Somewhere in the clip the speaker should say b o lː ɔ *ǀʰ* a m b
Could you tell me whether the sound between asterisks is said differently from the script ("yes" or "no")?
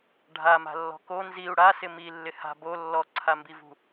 no